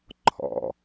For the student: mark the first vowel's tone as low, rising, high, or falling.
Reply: low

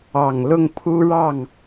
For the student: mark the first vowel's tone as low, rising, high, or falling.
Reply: low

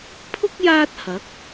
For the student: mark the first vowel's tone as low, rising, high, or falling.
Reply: high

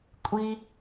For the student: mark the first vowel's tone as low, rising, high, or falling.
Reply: high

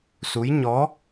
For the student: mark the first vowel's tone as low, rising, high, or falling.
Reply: rising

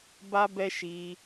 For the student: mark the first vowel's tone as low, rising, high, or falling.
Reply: high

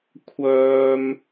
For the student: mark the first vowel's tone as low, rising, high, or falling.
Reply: low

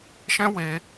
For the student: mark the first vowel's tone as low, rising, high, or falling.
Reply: high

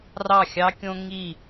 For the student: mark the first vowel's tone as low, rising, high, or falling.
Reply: falling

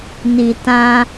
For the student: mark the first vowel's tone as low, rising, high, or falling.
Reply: low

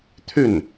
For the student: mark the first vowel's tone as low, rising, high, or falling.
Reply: falling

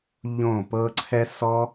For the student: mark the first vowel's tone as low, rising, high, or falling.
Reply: falling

